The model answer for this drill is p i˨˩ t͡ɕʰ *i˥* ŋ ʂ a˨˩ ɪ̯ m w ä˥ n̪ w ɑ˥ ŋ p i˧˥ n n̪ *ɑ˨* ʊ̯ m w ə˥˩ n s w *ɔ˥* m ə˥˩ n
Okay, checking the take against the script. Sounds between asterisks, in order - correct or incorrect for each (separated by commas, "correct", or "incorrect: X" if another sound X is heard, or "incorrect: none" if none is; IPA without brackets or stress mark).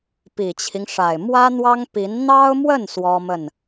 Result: incorrect: i˦, incorrect: ɑ˥, correct